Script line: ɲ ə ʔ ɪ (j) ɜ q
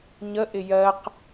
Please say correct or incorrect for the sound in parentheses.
correct